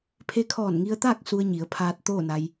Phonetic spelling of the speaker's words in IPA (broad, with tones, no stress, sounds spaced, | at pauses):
pʰ e˧ kʰ ɔː˧˩ n ŋ i˧ ə̯ t̪ aː˥˨ k̚ s u˧ ə̯ ɲ i˩˧ ə̯ pʰ aː˧ t̚ t̪ oː˥˨ n a˧ j